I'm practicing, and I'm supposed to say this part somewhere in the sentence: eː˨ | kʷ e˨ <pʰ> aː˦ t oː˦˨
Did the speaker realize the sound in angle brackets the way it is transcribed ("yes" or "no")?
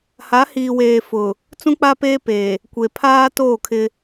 yes